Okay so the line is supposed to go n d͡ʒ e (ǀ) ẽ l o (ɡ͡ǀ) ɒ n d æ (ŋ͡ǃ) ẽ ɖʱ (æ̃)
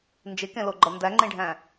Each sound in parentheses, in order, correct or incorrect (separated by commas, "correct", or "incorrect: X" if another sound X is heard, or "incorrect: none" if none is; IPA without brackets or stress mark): incorrect: k, incorrect: ɡ͡ǃ, correct, correct